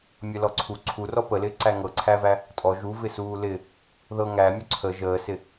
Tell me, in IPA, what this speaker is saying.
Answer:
mʲ ɐ l ɔ ǀʰ u ǀʰ u r ɔ p ə l ɪː ǀ æ ŋ ɤ ǀʰ æ v æ | tʼ ɔ ʒ u v ɪ s uː l ɪ | ð ɤ ŋ æ mʲ u ǀʰ ə ʒ əː s ɪ

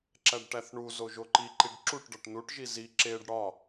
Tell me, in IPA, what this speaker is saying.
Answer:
ǁ æ ɖ ʈ æ θ ɳ u z o ʒ o ǃ i ǃ i ɖ ǁ u ʈ ɖ ɒ ʈ n u ʈ ʒ i z i ǁ e ɖ ɽ ɒ

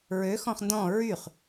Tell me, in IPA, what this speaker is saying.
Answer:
ɹ ø x ɔ̃ χ n d ɔ̃ ɹ y χ

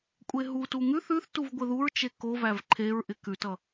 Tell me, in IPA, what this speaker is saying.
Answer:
kʷʼ e ɦ u t u ŋ ʉ θ ʉ θ t u v ɡʷ ɪ ð u ɹ t͡ʃ e k o v æ v ǃʰ e ɹ ʔ ɪ k ʉ t ʌ

